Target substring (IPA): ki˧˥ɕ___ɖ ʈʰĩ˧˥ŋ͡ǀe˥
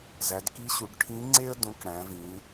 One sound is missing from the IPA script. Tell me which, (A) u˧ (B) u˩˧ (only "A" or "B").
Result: B